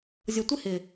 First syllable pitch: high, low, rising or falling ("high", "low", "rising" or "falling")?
low